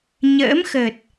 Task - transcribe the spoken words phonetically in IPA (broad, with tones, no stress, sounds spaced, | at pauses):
ɲ ə̰ː˧˥ m x əː˨˩ t̚